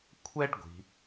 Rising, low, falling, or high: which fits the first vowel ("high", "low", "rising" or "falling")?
high